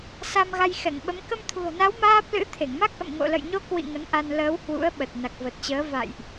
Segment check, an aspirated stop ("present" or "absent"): present